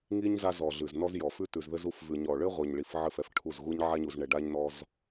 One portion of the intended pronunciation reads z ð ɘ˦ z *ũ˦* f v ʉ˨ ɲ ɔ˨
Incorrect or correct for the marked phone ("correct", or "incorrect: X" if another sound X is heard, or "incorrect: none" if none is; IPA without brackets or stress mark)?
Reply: incorrect: u˦